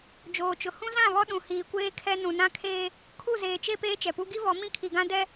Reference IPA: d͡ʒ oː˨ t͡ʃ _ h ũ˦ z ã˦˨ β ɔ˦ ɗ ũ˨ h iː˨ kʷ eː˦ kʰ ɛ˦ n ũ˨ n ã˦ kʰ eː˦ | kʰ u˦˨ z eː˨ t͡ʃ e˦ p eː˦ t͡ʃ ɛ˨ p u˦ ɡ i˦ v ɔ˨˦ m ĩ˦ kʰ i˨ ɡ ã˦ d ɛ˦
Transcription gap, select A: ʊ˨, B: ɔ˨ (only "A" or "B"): A